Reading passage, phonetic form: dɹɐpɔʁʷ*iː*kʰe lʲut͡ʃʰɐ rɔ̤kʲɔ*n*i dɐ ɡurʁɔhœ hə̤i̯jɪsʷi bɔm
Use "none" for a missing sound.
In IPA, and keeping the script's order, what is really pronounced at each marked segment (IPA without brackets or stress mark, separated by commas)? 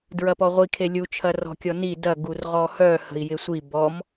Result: i, n